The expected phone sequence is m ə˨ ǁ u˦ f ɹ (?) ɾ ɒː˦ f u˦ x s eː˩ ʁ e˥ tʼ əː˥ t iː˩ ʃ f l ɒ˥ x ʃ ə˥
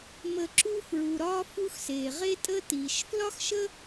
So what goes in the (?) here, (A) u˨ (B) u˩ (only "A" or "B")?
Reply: B